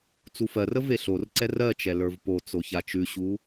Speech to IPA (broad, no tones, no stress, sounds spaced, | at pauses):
t͡s u f ɜ r ə v e ɬ o r ǀ ɛ r ɜ t͡ʃ ɛ l ə˞ v p o t͡s o ç a t͡ʃ ʉ ɕ u